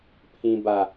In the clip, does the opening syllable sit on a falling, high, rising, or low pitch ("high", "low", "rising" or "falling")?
low